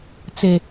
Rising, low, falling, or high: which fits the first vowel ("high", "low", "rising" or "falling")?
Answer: low